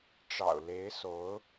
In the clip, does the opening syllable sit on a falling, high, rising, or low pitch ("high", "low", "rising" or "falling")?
low